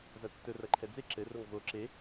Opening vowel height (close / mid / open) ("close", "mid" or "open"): open